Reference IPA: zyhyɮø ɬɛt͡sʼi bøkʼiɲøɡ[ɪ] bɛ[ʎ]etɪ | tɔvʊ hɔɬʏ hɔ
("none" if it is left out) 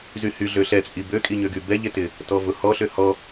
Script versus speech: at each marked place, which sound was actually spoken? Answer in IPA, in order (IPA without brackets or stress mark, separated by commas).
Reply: y, ʎ